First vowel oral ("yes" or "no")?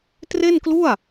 yes